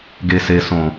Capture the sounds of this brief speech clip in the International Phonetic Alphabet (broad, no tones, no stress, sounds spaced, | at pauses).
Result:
ɡ e s e s õ